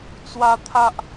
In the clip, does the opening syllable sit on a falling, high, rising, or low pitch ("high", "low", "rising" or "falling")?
high